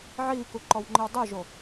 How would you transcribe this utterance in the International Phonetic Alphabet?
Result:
ʕ iː k u ǃ ɔ w ŋ͡ǃ ɨ w dˤ o ʒ o

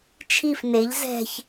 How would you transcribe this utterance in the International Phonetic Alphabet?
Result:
t͡ʃʰ i f n e ʎ z ɛ̤ ç

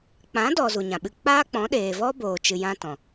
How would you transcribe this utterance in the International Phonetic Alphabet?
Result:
k͡p ã˨˦ d ɔ˨ z u˨ ɲ ã˨ ɓ ɨ˧ k͡p aː˦ k͡p ɔ̃˨˦ ɗ eː˨ v ɔ˦ b oː˨ t͡ʃ ɨ˧ j ã˦ t ɔ̃˨

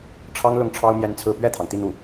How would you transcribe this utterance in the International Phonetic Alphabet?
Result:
ʈ͡ʂʰ ɑ˥ ŋ l ʊ˥˩ ŋ ʈ͡ʂʰ ɑ˥ ʊ̯ m j ɛ˥ n t͡sʰ ɹ̩˥˧ p ɥ ɛ˥˩ t̪ʰ ɑ˩ ŋ t̪ i˥˧ n̪ u˥˩

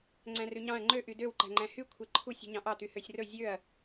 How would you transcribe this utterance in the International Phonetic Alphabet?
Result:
ŋ͡ǀ æ̃ r ʉ ɲ ɑ̃ ɐ̯ ŋ͡ǃ ø ʔ y d ø w ǃ æ̤ ŋ͡ǃ æ̃ h y kʷʰ e ǃʰ u sʲ ṳ ɲ ɑ̃ ʔ ɑ t̪ y h ø sʲ r ɵ zʲ ø ɐ̯

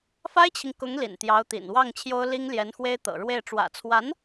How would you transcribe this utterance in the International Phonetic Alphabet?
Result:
f a˥ ɪ̯ t͡ɕʰ i˨ ŋ k ʊ˧˥ ŋ l ḭ˨˩ n t̪ j ɑ˧˥ ʊ̯ t̪ ḭ˨˩ n w ɑ˥˩ ŋ t͡ɕʰ j o˥ ʊ̯ l i˥ ŋ l j ɛ˧˥ n x w e˥ ɪ̯ t̪ ɤ̰˨˩ ɻ w e˥˩ ɪ̯ ʈ͡ʂ w ä̰˨˩ t͡sʰ w a˧˥ n

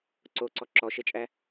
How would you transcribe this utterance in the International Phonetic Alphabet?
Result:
ǀ o ǀ ɔ ǁ ɔ ʃ e t͡ʃʼ æ

